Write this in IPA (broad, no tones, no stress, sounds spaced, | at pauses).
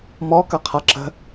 m ɔ k ɐ qʰ a ǁ ə̤